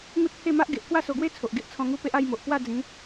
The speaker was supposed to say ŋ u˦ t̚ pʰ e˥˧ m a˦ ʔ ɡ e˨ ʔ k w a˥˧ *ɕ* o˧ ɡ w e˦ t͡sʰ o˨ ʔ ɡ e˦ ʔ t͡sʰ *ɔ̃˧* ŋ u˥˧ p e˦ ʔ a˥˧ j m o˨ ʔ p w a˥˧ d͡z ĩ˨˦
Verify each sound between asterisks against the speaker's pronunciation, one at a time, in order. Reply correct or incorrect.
incorrect, correct

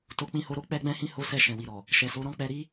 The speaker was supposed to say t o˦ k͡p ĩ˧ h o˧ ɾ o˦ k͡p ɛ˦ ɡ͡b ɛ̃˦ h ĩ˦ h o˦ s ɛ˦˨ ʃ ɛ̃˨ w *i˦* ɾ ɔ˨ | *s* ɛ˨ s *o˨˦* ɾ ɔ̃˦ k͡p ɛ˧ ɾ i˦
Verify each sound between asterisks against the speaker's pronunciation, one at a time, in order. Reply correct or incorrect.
incorrect, incorrect, correct

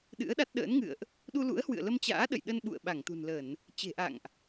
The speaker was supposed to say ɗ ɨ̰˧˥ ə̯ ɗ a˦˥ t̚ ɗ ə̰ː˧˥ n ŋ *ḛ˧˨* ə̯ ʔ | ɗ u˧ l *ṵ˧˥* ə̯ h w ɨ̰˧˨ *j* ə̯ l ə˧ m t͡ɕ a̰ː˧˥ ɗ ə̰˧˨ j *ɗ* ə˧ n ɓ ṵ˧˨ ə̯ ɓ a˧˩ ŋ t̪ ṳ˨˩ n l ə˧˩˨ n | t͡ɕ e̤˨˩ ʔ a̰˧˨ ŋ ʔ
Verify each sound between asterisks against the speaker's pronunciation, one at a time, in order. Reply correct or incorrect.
incorrect, correct, incorrect, correct

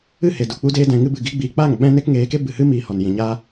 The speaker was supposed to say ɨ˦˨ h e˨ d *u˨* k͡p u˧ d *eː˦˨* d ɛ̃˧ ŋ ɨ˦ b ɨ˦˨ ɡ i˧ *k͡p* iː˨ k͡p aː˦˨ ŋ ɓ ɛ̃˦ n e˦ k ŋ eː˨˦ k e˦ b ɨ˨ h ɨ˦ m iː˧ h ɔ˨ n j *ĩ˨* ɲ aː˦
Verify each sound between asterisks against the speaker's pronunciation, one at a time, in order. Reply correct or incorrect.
correct, incorrect, incorrect, correct

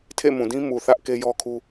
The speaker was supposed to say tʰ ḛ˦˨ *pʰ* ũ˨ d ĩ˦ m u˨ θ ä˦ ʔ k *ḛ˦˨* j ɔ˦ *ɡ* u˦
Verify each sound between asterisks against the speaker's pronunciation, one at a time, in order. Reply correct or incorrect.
incorrect, incorrect, incorrect

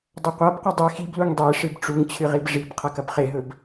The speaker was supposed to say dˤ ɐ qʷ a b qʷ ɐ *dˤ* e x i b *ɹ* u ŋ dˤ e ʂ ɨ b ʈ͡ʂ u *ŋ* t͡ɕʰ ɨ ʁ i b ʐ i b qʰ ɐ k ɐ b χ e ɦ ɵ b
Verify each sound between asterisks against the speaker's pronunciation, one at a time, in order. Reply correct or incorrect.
correct, incorrect, correct

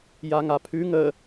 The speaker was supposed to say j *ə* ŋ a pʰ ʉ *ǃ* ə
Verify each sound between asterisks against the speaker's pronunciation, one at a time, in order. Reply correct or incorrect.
incorrect, incorrect

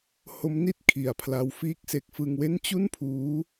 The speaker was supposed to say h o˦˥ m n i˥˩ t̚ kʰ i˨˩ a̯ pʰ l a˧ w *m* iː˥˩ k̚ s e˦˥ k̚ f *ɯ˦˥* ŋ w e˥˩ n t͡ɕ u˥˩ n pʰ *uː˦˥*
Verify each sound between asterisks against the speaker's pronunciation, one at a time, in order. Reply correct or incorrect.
incorrect, incorrect, correct

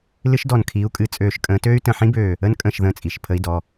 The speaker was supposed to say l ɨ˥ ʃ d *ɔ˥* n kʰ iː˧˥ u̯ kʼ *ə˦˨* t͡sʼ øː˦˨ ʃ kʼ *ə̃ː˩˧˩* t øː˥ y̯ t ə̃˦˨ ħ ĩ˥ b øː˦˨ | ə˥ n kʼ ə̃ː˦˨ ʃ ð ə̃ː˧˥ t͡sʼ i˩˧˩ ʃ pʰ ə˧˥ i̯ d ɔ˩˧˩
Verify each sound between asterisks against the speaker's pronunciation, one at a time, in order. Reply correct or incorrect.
incorrect, incorrect, incorrect

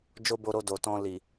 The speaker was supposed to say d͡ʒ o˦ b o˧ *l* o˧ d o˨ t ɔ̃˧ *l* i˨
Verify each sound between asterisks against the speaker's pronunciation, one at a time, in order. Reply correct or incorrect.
incorrect, correct

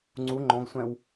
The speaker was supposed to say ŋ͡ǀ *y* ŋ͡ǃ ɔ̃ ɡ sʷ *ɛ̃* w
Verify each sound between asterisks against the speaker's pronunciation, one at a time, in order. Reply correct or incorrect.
incorrect, correct

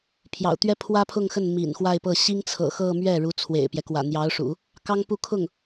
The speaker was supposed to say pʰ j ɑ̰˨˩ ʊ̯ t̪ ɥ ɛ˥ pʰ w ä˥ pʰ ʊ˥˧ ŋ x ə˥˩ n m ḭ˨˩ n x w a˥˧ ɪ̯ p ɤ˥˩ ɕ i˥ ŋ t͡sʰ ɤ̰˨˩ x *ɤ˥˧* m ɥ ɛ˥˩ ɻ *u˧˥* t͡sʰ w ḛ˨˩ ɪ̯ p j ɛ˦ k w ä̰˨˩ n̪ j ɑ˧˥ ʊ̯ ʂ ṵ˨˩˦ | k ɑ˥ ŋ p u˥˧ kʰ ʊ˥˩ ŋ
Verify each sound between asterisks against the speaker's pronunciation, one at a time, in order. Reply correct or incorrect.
correct, correct

